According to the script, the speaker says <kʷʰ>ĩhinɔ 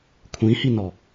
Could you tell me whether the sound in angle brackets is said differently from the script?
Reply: no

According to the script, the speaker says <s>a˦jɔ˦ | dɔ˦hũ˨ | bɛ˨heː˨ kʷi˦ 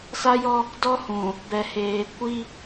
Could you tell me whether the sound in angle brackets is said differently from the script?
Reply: no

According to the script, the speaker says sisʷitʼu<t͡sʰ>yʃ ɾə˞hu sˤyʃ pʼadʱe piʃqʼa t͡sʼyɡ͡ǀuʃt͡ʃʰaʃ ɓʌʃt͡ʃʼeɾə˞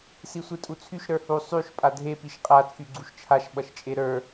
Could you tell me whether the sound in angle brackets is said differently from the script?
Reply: no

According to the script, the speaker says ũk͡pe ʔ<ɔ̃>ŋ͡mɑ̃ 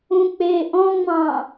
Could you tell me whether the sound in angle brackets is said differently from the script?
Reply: no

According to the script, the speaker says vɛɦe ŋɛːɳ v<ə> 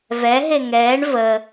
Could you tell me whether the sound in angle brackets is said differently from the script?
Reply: no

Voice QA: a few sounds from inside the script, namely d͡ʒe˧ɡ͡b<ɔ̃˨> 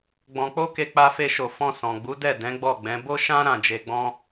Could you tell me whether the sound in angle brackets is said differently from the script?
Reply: yes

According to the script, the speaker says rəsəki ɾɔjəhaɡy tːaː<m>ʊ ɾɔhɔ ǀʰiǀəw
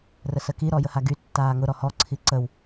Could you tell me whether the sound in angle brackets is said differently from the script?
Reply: yes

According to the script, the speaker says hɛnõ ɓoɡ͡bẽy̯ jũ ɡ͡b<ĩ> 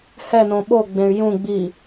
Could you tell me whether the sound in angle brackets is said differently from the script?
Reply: yes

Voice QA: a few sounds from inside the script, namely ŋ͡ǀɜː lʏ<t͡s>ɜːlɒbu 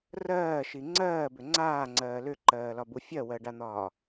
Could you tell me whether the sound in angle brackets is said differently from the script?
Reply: yes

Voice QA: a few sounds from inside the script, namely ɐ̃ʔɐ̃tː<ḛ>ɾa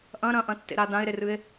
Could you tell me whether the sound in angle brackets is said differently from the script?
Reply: no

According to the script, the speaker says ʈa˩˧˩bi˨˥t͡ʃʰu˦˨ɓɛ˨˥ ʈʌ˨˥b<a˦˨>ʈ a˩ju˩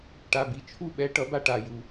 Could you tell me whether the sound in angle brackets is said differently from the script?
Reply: no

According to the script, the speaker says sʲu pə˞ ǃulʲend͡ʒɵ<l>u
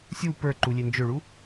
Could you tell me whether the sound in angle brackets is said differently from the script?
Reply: yes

